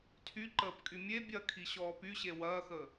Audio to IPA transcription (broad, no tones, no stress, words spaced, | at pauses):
tʰyǃəːpkʼy mʲe bʲɐkʰi ɕɔːpyɕe wɐːxəː